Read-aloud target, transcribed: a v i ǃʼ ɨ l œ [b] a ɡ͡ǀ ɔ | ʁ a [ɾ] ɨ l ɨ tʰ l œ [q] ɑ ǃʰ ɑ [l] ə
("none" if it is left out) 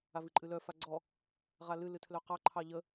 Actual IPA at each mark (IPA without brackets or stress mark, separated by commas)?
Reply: f, l, q, ʎ